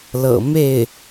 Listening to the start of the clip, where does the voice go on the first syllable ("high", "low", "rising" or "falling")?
low